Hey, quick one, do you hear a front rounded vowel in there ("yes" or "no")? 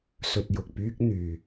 yes